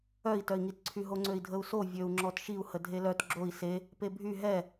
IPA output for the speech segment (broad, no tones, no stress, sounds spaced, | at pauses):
œ i̯ t œ i̯ ŋ i t ǀʰ y ɦ o ŋ͡ǀ ø i̯ dʱ ə u̯ s o vʲ ø u̯ ŋ͡ǁ ɔ t ʃ i u̯ h ə dʱ e l œ t ɡ͡ǁ o i̯ s e | p e bʱ y ɦ ɛ